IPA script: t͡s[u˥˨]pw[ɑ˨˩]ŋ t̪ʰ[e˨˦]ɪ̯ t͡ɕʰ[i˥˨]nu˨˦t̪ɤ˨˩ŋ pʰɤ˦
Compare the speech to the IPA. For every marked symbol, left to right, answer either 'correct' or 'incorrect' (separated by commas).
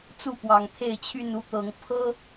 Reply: correct, correct, incorrect, incorrect